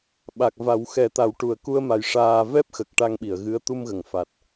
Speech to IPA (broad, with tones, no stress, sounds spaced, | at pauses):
ɓ a˨˩ k̚ v a˨˩˦ w x ɛ˨˩˦ t̪ a˨˩˦ w ʈ u˨˩ ə̯ k u˧ ə̯ m a˨˩ j ʂ aː˧ v ɛ˦˥ p̚ x ə˨˩ k̚ ʈ a˧ ŋ ɓ i˨˩˨ ə̯ ɣ ɨ˧˥ ə̯ t̪ u˧ m ɣ ə˨˩˨ ŋ f a˨˩ t̚